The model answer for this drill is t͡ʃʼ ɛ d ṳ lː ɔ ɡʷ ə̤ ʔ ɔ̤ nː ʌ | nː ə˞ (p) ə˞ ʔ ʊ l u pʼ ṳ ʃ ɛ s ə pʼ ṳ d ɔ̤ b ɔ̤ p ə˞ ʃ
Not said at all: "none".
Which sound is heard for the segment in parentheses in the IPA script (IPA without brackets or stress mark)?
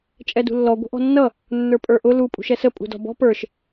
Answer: pʼ